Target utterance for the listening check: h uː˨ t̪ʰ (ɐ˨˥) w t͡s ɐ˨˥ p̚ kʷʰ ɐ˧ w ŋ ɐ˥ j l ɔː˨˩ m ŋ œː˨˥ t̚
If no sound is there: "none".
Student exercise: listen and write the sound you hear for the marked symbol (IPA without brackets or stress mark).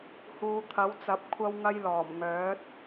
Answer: ɐ˨˥